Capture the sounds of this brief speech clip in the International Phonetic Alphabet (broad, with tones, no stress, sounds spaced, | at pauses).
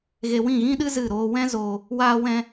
ɣ e˧ w ĩ˦˨ ɣ ĩ˦ ɗ ɨ˦ z ɨ˦˨ ɾ oː˦ w ɛ̃˦ z oː˧ | w aː˦ w ɛ̃˦